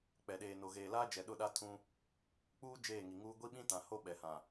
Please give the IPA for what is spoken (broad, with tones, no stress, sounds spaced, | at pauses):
k͡p ɛ˨ ɗ eː˨ n o˨ ɣ eː˨ l aː˦ d͡ʒ ɛ˨ ɗ ʊ˦˨ ɗ a˦ tʰ ũ˦ | k͡p uː˦ d͡ʒ eː˦˨ ŋ i˨ ŋ uː˦ ɡʷ i˦ ɓ ĩ˦ t ã˨ h o˦ ɓ ɛ˨ h ã˨